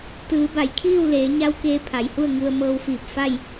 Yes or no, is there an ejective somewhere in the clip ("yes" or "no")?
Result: no